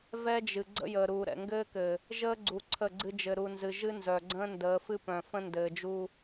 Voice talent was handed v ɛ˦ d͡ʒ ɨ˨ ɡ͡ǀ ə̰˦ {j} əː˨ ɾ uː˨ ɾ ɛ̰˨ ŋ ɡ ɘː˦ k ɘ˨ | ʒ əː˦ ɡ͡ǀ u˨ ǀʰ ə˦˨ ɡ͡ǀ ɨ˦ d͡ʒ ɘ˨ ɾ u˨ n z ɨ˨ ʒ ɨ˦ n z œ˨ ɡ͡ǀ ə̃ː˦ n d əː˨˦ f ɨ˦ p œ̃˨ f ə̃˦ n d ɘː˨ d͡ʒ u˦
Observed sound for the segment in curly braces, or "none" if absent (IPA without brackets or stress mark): j